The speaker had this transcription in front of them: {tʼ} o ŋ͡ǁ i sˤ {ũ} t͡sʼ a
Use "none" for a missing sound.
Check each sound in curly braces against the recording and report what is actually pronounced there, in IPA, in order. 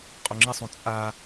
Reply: qʼ, ũ

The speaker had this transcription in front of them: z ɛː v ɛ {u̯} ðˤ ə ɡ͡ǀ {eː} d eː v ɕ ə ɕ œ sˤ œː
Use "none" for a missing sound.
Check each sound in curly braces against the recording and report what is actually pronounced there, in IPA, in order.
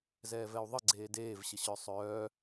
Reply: u̯, eː

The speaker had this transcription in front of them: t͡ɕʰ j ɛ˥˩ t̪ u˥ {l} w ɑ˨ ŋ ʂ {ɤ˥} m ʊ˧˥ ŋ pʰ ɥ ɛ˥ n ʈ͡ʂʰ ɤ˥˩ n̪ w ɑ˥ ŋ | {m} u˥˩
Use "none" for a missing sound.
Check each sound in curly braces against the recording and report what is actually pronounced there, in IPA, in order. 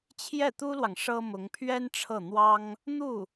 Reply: l, ɤ˥, n̪

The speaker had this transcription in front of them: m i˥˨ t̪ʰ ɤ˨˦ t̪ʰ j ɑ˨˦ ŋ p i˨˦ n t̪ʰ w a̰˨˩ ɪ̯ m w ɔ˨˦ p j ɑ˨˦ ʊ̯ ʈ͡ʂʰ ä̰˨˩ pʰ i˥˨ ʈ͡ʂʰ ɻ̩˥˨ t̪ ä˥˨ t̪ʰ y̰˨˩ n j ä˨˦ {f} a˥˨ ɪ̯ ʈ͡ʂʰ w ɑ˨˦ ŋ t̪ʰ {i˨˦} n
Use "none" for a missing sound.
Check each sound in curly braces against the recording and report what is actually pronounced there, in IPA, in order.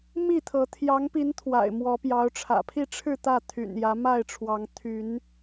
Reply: m, y˨˦

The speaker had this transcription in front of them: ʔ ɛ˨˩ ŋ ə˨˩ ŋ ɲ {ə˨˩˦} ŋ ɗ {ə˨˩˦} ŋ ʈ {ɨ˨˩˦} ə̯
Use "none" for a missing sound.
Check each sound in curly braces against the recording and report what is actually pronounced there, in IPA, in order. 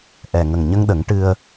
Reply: ə˧, ə˨˩˦, ɨ˧

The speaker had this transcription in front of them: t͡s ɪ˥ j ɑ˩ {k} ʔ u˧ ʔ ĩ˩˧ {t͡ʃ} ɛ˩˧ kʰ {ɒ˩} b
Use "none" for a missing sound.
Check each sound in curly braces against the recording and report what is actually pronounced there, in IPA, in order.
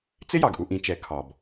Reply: ɡ, t͡ʃ, ɒ˩

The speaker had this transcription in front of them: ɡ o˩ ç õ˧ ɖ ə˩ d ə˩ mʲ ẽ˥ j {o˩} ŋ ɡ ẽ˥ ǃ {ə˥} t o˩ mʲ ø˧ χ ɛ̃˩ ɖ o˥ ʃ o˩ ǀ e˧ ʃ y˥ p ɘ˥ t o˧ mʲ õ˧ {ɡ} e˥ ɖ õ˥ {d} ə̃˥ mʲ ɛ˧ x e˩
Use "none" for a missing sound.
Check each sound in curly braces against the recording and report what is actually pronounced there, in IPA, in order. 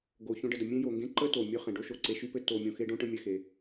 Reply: o˩, ə˥, x, ʈ

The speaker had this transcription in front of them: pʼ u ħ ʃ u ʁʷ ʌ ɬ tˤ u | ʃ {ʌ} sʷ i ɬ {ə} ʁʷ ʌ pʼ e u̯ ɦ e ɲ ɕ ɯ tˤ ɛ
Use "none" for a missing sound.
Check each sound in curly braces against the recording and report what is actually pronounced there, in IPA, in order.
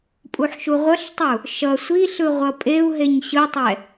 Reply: ʌ, ɯ

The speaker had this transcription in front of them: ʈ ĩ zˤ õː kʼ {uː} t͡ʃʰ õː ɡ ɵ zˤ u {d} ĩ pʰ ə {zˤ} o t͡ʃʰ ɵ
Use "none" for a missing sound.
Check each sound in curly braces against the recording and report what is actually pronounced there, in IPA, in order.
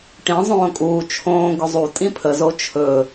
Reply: uː, tʼ, z

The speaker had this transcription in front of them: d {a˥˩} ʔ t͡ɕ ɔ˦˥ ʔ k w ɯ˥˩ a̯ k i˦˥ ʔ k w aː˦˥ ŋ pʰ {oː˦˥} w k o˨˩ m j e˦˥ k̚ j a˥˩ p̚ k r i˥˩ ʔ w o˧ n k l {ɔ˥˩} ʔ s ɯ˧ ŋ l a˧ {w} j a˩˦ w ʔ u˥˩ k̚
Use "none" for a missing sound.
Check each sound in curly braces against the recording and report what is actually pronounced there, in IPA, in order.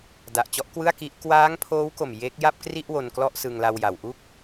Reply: a˨˩, oː˦˥, ɔ˥˩, w

